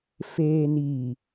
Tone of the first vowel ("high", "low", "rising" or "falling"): low